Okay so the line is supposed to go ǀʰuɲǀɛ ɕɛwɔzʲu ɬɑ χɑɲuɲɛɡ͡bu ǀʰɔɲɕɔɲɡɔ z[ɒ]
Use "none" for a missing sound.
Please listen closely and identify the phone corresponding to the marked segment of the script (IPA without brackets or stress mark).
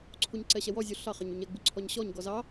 ɑ